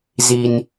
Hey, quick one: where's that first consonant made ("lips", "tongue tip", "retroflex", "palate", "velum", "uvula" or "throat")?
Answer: tongue tip